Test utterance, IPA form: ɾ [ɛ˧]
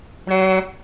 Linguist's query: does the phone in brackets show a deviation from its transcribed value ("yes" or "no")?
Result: yes